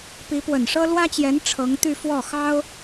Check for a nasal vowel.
absent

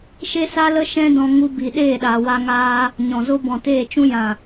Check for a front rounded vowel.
absent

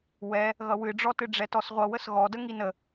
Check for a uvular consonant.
present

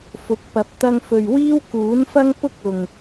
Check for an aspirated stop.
absent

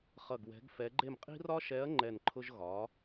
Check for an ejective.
present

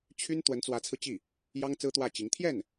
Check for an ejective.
absent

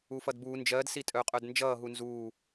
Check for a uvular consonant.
present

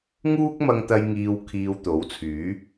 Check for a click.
absent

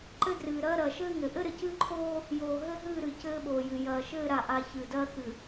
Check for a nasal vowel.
absent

